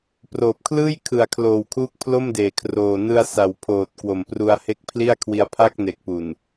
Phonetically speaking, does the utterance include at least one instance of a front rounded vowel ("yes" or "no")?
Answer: no